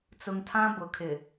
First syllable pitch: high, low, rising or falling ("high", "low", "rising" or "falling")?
low